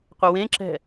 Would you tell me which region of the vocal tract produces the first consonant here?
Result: uvula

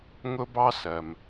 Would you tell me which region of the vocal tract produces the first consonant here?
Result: velum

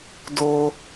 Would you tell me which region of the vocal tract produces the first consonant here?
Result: tongue tip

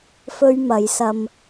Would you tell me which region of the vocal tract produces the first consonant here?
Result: lips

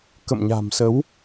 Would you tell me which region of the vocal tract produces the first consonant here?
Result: velum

